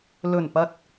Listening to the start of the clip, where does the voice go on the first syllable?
low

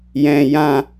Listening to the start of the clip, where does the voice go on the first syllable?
low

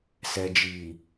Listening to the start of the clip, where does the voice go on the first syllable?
low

